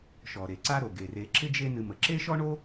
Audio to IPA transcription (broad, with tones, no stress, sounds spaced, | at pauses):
ʃ ɔ˩ ɾ e˩ ǀ a˦ ɾ o˩ ɡ e˩ r e˨ ǁ ɪ˥ d͡ʒ e˦ n ɨ˨ m ə˩ ǁ e˥ ʃ ɔ˥ ɳ o˥